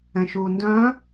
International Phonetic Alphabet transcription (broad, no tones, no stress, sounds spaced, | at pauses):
ɛ̃ ʃ uː n d œ̃ː